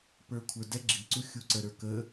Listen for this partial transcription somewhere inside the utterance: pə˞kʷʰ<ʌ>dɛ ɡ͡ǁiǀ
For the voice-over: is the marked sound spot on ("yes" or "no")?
no